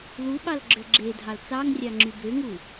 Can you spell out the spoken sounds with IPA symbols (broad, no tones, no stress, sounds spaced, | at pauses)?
l u ɓ ɑ l ɡ͡ǁ ø ɡ͡ǁ e dʱ ɑ l t͡s ɑ ŋ rʲ ɑ ŋ͡ǁ y b ø ŋ u